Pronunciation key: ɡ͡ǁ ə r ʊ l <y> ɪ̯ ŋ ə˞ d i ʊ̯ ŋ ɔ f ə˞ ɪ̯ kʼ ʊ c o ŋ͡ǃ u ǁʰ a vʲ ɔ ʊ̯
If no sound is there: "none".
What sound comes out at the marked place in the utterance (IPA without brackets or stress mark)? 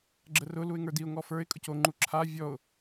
u